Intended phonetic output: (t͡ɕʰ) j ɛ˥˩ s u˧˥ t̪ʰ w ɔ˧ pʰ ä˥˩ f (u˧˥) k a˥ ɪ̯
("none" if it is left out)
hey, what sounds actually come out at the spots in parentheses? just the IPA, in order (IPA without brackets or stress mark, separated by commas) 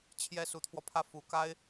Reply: t͡ɕʰ, u˨˩